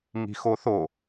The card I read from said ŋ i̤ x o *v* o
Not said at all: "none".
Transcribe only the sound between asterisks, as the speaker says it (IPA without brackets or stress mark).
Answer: θ